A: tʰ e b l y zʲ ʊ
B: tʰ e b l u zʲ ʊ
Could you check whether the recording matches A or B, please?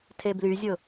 A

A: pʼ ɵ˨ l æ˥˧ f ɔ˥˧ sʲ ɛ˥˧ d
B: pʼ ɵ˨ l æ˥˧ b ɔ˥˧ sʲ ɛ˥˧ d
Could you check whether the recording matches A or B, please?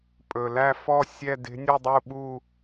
A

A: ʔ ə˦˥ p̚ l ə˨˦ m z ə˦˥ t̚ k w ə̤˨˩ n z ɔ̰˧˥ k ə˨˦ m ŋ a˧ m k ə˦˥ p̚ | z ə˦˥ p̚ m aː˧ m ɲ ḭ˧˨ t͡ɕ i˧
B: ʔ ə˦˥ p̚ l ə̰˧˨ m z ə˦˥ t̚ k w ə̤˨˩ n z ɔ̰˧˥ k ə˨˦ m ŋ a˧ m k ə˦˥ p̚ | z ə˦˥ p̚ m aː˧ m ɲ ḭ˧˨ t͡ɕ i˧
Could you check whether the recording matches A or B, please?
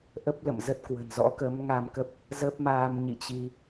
B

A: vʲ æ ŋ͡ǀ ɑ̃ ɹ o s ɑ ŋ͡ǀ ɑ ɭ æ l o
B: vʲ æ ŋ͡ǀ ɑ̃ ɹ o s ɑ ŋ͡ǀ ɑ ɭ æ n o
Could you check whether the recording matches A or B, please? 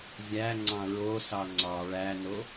B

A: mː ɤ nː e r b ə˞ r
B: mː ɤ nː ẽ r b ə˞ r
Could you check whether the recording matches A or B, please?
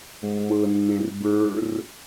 B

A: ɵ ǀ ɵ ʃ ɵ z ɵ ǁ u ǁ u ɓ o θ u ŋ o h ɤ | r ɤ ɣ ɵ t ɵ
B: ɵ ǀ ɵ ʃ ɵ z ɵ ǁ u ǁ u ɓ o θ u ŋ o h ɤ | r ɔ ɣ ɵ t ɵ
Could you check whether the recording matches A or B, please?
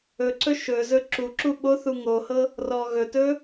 B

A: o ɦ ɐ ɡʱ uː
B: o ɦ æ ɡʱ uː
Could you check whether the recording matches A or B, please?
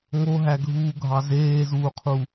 B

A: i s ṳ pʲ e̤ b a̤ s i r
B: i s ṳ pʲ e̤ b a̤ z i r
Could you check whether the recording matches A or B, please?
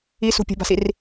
A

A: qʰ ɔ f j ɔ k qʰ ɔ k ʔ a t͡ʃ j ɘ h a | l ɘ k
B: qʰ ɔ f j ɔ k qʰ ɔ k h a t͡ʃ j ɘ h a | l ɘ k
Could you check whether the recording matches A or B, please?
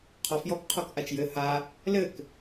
A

